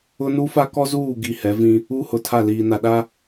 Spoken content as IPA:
ʊ˦ n u˦ f a˦ k ɔ˦ z uː˦˨ ɡ i˦˨ h ɛ˨˦ v ĩ˦ | u˦ h ʊ˨ tʰ a˦˨ l iː˨ n a˨ ɗ a˦

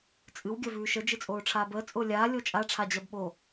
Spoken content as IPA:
t͡sʼ ɨ w ɡʲ ɜ v ʉː ʃ ə d͡ʒ ɨ t͡sʼ oː ʈ͡ʂʰ aː b əː t͡sʼ ʊː lʲ aː lʲ o t͡ʃʼ a ʈ͡ʂʰ a d͡ʑ ɜ b ɓ o

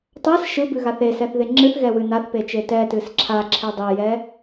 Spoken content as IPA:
tˤ a s ʃ ɯ b ɨ ɣ a θ e s ɛ θ ð e ŋ͡ǁ ɨ θ ɣ ɛ w ɨ n a θ p e t͡ʃ e t ɛ t ɨ s ǁʰ a ǁʰ e dˤ e j ɛ

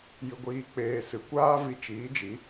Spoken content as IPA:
j ɨ˧ ɡʷ iː˧ k͡p eː˧ s ɨ˨ kʷ aː˦ v i˧ t͡ʃ iː˨˦ d͡ʒ i˨˦

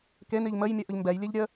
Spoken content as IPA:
k e n i ʎ m ə j mʲ ə ʔ ʊ ʎ m b ɛ j lʲ e ʎ ɾʲ ə

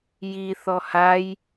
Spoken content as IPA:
j i θ ɔ h a j

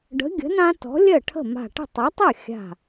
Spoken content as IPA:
ɖ ə̤˨˥ ɡʲ ə̤˨˥ n ã˦ t ɔ̤˨˥ lʲ ɜ˥˩ ʈʰ ə̤˥˩ m a̤˧˩ ʈ ə̤˥˩ tˤ a˨˥ tˤ ɜ˥˩ xʲ a̤˧˩

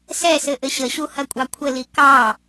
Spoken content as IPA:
s ɛ s ɘ ʔ ɘ ɕ ə ɕ u h ɐ kʷʼ ɑ kʷʰ ə l i k ɑ

